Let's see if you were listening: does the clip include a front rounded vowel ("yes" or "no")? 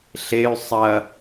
yes